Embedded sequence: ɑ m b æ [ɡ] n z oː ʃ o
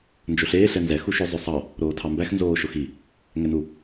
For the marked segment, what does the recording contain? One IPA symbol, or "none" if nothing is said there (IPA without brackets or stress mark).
x